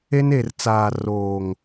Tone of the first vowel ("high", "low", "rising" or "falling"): high